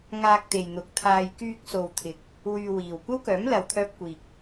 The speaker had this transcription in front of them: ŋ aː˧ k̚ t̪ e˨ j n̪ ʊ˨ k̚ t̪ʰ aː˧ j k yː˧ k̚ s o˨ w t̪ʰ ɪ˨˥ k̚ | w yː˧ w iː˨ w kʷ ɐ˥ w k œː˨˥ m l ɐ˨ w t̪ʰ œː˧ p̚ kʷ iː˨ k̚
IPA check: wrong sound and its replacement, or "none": none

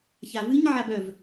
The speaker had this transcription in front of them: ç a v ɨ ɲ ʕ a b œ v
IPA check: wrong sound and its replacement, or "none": none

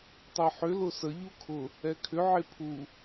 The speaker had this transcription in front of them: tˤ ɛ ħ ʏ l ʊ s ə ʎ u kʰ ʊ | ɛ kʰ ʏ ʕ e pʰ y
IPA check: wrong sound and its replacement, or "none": y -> u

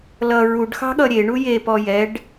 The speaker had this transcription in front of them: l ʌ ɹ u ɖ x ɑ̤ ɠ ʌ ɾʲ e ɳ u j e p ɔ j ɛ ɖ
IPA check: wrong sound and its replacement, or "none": none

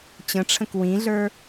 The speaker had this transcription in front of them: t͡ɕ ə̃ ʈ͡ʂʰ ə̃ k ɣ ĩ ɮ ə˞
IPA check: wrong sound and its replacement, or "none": ɣ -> w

